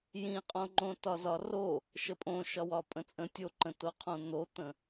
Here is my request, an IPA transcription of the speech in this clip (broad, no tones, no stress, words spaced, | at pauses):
jĩqʼõŋ͡ǃõtɒ zɒro | ʃəpʼõ ʃɒwɒpʼə̃t͡sʼə̃ tʲoǃə̃toqʰõ n̪ot̪ə̃